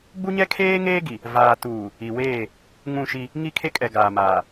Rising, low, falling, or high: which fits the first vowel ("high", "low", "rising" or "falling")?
high